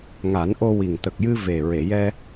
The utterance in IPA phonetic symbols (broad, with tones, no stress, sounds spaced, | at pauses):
ŋ a˨˩˦ n ʔ o˧ w i˨˩ ŋ t̪ ə˨˩ k̚ j ɨ˧ v e˨˩ ɹ e˨˩˨ j ɛ˧